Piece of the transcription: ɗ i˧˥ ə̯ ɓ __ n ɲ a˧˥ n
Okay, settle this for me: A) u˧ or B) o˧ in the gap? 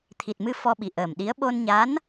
B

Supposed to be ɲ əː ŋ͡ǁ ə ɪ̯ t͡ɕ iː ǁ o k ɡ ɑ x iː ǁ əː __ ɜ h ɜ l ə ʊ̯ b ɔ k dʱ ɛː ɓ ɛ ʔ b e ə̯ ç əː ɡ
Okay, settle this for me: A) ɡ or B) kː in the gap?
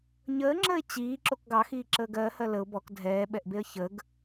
A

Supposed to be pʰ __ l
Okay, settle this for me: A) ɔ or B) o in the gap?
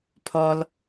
A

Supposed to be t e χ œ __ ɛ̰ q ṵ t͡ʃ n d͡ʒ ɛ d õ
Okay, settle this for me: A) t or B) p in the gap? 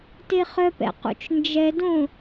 B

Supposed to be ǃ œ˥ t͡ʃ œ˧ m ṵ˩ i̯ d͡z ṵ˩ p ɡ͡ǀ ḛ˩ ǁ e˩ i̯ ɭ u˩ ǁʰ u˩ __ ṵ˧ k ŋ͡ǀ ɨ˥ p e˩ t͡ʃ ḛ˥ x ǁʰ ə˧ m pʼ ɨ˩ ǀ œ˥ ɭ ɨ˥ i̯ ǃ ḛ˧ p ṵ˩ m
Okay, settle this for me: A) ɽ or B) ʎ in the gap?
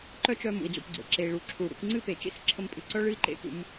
A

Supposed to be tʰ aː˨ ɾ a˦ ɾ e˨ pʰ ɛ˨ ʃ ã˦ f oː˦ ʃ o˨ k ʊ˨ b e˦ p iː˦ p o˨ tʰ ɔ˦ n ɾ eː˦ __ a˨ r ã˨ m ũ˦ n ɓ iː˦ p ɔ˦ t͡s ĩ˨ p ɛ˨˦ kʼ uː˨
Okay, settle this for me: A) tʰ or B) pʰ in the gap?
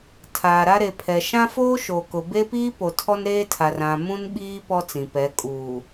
A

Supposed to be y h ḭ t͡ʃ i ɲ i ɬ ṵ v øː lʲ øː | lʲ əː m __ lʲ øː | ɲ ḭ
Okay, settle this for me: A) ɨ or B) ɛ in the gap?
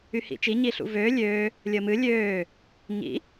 A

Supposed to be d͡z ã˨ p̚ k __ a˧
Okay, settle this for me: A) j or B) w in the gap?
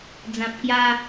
A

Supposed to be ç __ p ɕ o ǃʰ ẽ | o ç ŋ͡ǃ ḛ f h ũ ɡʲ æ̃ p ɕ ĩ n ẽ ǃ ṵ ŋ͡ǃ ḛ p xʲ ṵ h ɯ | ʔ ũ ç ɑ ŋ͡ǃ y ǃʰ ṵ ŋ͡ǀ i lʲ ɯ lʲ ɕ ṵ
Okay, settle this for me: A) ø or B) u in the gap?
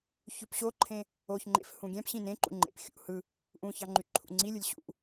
A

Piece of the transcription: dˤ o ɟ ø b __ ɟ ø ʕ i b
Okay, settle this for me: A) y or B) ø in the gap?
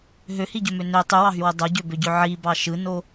B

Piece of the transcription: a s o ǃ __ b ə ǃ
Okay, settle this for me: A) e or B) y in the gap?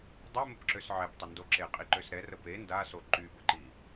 B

